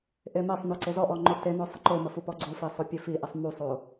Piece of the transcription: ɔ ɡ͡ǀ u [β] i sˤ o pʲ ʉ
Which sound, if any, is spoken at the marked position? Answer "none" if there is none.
f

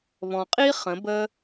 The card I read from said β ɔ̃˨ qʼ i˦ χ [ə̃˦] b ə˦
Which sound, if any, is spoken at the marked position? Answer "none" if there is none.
ə̃˨˦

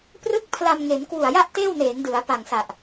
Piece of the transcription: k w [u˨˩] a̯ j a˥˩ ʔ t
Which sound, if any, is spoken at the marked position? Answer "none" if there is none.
u˨˩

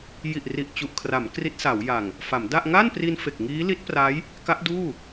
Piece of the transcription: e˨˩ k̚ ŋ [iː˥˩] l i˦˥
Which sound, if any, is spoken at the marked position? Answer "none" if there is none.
iː˦˥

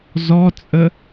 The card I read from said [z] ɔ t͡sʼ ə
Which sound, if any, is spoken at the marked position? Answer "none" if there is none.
z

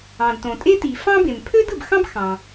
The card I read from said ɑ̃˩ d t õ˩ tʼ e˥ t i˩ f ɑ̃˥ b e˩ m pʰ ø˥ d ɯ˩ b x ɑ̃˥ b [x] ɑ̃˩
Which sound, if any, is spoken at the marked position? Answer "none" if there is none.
x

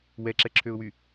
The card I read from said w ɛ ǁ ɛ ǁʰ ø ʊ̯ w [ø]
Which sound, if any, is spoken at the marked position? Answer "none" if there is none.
y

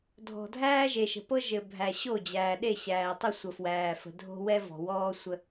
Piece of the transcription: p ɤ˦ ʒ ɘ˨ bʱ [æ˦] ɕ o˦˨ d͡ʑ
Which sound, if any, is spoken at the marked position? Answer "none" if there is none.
æ˨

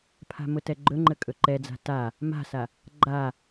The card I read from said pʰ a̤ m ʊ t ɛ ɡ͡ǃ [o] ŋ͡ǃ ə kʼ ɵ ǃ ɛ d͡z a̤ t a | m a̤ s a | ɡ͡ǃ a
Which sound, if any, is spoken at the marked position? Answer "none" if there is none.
ɵ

